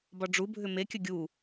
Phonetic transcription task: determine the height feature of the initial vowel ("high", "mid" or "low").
low